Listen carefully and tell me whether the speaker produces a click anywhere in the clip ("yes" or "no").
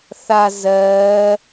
no